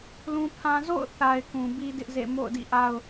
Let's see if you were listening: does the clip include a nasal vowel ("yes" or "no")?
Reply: yes